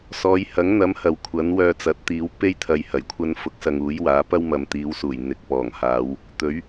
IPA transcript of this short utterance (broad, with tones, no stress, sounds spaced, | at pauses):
s ɔː˨˧ j h ɐ˨˥ ŋ n̪ ɐ˨˥ m h ɐ˨ w kʷʰ ɐ˨˥ n w œː˧ t͡s ɐ˨˥ t̚ t̪ iː˨˥ w p e˥ j t̪ʰ ɐ˨ j h ɐ˨˩ j kʷʰ ɐ˧ n f ʊ˨˥ k̚ s ɐ˨ ŋ uː˨˥ j w aː˨˥ p ɐ˥ w m ɐ˨ m t̪ iː˨˧ w s uː˨˩ j n̪ ɪ˨ k̚ p ɔː˨˩ ŋ h aː˨˧ w | t̪ ɵ˨˥ ɥ